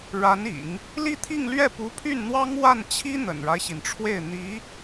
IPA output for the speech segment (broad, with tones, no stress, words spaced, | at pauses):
ɻa˧˥nḭ˨˩˦ŋ | li˥˧t̪ʰi˥˧ŋlɥɛ˥˩ pu˧˥pʰy˥˩nn̪wɑ˥ŋ wa˥˩nt͡ɕʰi˥ n̪ə̰˨˩nɻa˦ɪ̯ɕi˩nʈ͡ʂʰwe˥˩ɪ̯ n̪i˧˥